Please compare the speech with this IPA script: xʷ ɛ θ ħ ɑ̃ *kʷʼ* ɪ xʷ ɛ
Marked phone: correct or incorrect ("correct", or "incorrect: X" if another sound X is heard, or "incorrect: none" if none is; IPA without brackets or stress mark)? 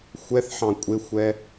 correct